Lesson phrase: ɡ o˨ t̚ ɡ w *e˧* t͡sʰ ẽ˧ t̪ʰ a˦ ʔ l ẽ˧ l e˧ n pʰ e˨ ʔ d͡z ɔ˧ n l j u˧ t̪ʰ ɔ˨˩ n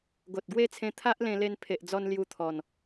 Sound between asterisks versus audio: incorrect: e˦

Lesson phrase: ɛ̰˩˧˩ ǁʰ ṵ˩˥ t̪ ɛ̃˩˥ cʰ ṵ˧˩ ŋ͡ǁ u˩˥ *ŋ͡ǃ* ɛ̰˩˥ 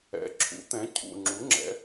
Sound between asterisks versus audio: incorrect: ŋ͡ǁ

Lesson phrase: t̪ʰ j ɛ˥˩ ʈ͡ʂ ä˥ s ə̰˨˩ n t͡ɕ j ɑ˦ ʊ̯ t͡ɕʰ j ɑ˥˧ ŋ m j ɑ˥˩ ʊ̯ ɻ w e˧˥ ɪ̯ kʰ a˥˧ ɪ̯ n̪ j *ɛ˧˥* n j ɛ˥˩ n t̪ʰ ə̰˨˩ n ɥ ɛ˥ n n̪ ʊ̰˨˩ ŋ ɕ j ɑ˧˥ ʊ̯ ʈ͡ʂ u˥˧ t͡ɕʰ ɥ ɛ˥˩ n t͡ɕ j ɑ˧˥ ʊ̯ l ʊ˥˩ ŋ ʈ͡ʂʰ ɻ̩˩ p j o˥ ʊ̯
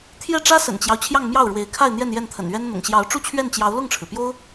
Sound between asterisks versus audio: incorrect: ɛ˥˧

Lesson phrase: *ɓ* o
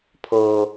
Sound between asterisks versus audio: incorrect: pʰ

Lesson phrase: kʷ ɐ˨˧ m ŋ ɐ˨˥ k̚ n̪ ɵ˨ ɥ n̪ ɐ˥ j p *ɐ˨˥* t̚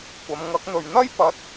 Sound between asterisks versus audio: correct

